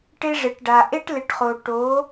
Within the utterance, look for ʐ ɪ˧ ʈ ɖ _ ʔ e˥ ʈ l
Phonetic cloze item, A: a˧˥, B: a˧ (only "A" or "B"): B